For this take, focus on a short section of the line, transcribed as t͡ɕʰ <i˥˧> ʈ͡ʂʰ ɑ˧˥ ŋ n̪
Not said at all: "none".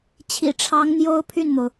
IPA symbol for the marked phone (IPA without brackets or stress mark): ḭ˨˩